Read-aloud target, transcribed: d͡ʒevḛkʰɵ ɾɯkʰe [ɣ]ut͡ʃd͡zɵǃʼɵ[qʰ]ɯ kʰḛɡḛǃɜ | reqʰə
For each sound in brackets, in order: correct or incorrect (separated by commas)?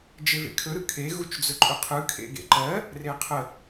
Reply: correct, correct